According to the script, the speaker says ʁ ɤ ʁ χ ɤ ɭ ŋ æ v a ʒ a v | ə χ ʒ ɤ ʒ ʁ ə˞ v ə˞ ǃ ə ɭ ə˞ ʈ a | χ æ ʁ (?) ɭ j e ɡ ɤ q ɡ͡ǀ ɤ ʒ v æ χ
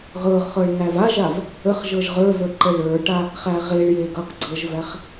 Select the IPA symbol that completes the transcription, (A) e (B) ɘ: A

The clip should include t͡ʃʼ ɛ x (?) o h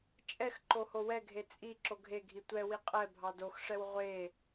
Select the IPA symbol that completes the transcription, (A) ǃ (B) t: A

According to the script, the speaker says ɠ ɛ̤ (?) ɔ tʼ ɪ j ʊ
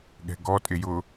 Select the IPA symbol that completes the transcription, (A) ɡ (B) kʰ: A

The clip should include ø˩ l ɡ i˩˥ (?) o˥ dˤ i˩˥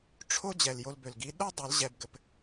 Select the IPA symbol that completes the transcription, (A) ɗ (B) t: A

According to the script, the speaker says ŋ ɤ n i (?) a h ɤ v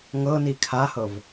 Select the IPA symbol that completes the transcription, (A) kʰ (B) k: A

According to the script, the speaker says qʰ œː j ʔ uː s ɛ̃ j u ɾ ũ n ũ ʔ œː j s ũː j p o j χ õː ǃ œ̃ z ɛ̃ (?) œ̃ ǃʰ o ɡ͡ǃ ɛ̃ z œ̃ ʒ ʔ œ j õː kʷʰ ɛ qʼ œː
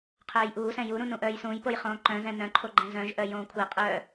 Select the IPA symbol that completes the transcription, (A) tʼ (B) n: B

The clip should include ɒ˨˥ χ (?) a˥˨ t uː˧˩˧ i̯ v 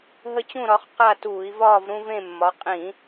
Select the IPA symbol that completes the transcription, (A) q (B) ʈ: A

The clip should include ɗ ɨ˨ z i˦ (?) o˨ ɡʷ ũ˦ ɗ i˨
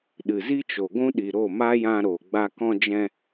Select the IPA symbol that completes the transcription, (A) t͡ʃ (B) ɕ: A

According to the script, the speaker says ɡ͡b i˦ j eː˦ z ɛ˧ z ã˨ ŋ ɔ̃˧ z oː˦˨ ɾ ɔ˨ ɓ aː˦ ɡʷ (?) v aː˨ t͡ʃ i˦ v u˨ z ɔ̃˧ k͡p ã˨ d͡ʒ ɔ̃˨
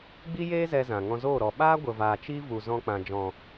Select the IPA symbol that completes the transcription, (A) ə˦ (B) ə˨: B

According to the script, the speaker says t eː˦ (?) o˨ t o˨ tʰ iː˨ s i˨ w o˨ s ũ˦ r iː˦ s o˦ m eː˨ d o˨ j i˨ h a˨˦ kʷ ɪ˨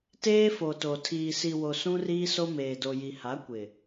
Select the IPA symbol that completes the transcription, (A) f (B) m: A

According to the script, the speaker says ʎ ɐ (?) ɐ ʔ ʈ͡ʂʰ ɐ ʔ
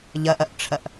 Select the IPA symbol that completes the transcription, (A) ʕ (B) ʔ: B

